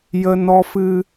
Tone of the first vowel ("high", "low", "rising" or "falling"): high